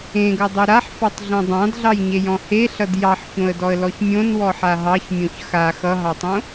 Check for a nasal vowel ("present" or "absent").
present